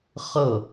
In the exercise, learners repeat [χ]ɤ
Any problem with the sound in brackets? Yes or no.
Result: no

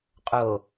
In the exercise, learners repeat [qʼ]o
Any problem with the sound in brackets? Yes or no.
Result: no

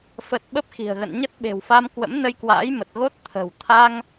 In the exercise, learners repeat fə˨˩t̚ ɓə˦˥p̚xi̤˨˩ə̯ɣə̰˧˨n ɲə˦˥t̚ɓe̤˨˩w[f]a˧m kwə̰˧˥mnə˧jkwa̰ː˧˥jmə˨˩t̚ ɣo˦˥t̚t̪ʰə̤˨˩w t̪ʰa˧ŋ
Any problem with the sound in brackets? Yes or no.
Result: no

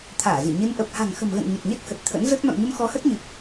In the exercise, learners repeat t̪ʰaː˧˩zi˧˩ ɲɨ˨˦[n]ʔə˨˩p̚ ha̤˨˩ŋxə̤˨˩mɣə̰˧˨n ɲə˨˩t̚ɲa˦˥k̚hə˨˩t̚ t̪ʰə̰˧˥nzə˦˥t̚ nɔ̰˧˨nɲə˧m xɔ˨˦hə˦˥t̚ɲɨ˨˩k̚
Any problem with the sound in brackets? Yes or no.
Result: no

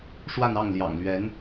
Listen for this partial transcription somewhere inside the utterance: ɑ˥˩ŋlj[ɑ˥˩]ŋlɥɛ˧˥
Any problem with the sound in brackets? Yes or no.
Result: yes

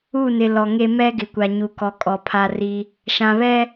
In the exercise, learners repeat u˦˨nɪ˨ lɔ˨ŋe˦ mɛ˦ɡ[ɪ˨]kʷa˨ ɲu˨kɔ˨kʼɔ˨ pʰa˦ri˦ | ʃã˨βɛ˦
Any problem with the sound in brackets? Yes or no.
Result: no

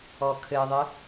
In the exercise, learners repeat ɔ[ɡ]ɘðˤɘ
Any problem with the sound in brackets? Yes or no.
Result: yes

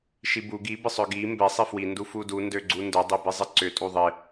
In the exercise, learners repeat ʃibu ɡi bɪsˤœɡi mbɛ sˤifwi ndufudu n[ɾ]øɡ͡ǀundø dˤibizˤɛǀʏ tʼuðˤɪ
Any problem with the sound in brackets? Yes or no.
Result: yes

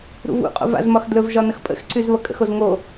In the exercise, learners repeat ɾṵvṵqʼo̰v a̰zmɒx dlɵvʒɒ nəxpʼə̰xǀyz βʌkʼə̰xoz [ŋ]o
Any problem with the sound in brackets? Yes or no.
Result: no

